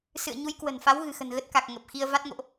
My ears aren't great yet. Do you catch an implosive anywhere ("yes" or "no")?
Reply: no